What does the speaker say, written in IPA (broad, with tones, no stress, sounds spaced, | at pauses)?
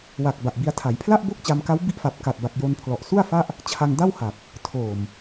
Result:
w a˨˩ k̚ b a˨˩ ʔ b i˧ a̯ tʰ a˩˦ j pʰ l a˥˩ ʔ b o˥˩ k̚ t͡ɕ a˧ m k a˦˥ w b i˦˥ ʔ f a˨˩ p̚ k a˨˩ t̚ b a˨˩ k̚ j o˧ n pʰ l ɔ˨˩ ʔ s u˥˩ a̯ f a˥˩ ʔ | t͡ɕʰ a˧ ŋ d a˥˩ w h a˨˩ k̚ | tʰ oː˨˩ m